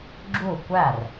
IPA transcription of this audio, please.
ɡ͡ǁ u˥˩ kʷ æ˥˩ r

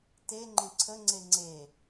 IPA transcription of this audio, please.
t e ŋ͡ǃ ẽ ǀʰ ə ŋ͡ǀ e ŋ͡ǀ e

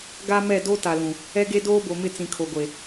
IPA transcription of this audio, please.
ɡ a˦ m ɛ˦˨ d o˦ t a˨ l ũ˨ | ɛ˦ ɡ e˦ d oː˦ b o˨ m ɪ˦˨ t͡s ĩ˨ kʰ o˨ ɡʷ e˨

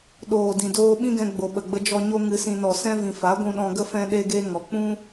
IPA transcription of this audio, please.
ɗ oː˨ d ĩ˨ d oː˧ ɓ ĩ˦ ɡ ɛ̃˧ ɡ͡b o˨ ɓ ə˨ ɡ͡b ə˧ d͡ʒ ɔ˧ ɲ o˦ ŋ ɨ˧ s ĩ˧ n ɔ˨ s ɛ̃˦ v ĩ˨ f a˨˦ ɡʷ ũ˧ ɗ ɔ̃˧ ɡ ə˦ f ɛ̃˦ ɗ e˦ ɡ e˦ ŋ ɔ˨ k͡p ũ˦

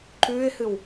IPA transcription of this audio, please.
ǃ ʉː ɪ̯ h ɨ w

